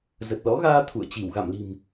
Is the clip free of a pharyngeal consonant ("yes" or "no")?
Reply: yes